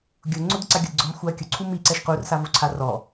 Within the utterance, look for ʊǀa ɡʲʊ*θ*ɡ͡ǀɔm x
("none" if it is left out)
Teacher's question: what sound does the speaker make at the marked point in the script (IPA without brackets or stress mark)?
d